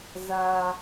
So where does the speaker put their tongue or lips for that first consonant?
tongue tip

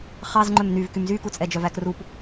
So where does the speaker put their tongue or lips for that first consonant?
uvula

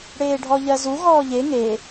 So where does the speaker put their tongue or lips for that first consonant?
retroflex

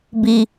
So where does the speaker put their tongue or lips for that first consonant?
lips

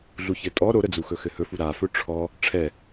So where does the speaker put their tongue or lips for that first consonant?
tongue tip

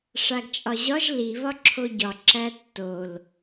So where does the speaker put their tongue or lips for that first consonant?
retroflex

